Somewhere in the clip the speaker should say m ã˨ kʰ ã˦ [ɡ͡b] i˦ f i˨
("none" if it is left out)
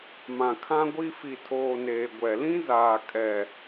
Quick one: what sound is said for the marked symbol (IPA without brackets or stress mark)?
ɡʷ